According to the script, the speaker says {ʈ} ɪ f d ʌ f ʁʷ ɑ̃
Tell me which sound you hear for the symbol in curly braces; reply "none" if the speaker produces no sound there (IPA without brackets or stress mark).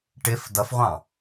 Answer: ʈ